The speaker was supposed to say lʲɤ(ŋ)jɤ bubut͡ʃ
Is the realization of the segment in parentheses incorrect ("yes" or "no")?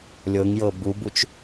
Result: no